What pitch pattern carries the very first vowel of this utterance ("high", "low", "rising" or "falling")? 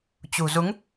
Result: low